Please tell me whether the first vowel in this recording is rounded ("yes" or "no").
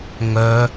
yes